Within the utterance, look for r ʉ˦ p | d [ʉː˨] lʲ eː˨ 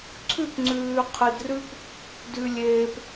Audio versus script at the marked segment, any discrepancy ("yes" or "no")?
yes